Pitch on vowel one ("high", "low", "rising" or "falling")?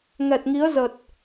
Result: low